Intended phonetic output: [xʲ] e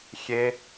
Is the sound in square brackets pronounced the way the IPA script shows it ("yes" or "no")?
yes